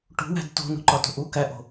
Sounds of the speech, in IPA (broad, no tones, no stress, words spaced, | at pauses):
ʈṳwæ̤d to̤nṳǃɒto̤ ʔu kæʔo̤